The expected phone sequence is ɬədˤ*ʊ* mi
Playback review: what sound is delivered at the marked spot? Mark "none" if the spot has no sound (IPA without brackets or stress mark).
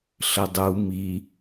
u